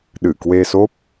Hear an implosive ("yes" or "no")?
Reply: yes